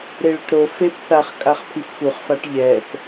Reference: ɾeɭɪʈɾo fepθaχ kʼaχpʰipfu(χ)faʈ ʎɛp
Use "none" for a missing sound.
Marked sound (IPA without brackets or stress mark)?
χ